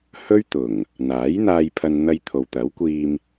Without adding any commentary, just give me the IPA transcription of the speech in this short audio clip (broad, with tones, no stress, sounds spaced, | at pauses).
h ɵ˥ ɥ t̪ ʊ˨˩ ŋ | n̪ aː˨˥ j n̪ aː˧ j pʰ ɐ˧ n n̪ ɐ˧ j t̪ʰ o˨ w t̪ ɐ˨˥ w kʷ iː˧ m